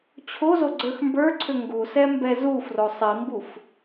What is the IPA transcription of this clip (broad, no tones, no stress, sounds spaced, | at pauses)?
t͡ɕʰ o z o ɡ͡ǀ ə˞ x m b ə˞ ǀʰ ʏ ŋ ɡ u s ɛ m b ɛ z u f r o sˤ i m b u f